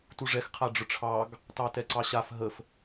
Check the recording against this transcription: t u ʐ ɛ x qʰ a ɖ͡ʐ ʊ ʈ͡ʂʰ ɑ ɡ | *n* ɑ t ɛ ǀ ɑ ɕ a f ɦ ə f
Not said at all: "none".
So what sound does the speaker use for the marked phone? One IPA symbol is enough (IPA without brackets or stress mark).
t